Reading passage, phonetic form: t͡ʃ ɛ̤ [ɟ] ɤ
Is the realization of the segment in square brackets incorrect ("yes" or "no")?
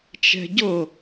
no